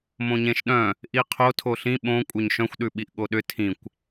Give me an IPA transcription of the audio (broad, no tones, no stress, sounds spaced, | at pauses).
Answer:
m õ ɲ ẽ ʃ ɗ œ̃ | ʔ i qʰ o tʰ o ɬ ĩ ɓ õ kʷʼ œ ɲ ʃ œ̃ xʷ ɗ ʉ ɓ i ʔ ɠ o ɗ ʏ tʰ ĩ kʷ